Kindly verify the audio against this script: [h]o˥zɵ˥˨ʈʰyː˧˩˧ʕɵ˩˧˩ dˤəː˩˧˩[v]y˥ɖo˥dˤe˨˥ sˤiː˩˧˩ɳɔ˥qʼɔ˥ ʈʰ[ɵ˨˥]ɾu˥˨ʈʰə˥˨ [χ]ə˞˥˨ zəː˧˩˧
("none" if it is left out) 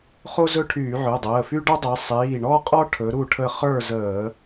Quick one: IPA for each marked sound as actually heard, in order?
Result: χ, f, ɵ˨˥, χ

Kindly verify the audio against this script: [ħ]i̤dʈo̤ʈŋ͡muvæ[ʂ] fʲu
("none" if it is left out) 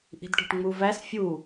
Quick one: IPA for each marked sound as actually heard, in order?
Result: ʔ, s

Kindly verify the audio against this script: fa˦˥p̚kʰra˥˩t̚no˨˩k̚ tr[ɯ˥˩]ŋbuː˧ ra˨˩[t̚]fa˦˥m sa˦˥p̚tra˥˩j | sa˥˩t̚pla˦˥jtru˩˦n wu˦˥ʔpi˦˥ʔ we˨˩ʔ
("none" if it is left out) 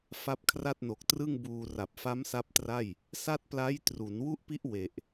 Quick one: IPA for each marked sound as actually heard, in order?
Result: ɯ˥˩, p̚

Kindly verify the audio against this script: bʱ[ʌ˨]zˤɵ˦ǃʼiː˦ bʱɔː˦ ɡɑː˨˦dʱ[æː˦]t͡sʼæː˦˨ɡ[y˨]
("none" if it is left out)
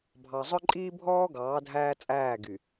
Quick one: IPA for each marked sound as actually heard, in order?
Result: ɑ˨, æː˦, y˨

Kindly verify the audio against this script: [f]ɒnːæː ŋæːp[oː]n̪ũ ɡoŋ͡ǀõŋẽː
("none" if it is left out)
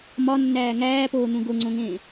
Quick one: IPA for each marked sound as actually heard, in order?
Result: m, oː

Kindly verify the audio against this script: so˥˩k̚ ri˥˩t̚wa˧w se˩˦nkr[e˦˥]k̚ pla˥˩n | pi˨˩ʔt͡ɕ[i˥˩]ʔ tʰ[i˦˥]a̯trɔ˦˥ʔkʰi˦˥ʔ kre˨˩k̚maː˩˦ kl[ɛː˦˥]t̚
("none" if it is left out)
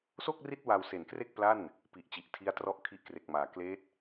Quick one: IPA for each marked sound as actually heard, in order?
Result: e˥˩, i˨˩, i˦˥, eː˦˥

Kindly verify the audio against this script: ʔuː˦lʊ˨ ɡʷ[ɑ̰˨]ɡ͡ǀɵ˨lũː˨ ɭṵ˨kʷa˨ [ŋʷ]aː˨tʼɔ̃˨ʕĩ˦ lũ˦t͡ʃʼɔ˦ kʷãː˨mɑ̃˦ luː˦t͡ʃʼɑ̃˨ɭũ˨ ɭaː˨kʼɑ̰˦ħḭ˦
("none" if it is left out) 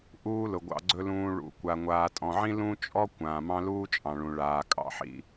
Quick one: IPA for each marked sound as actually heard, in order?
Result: ɑ̰˨, ŋʷ

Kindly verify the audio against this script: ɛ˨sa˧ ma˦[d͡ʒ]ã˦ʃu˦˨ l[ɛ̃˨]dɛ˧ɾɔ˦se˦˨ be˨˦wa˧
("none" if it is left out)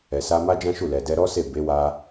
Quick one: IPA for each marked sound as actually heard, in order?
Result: d͡ʒ, ɛ˨

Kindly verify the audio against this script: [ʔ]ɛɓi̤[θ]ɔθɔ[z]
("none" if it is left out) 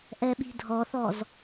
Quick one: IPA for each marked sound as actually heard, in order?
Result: ʔ, dʱ, z

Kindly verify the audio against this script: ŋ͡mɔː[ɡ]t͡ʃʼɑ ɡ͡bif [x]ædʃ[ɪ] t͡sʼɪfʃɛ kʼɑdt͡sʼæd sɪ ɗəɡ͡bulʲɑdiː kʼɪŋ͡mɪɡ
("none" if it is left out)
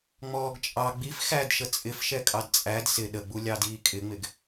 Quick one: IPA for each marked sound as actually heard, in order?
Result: ɡ, x, ə

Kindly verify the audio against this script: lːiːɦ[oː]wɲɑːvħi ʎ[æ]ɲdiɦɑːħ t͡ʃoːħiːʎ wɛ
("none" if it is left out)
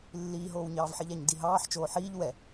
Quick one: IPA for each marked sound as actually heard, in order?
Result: oː, æ

